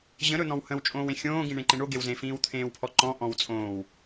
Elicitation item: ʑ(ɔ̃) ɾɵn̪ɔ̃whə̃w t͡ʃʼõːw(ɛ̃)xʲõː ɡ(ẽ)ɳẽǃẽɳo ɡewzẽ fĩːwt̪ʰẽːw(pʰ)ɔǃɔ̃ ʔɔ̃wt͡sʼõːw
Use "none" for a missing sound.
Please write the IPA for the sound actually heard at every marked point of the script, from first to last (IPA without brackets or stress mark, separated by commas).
ə̃, ẽ, ĩ, pʰ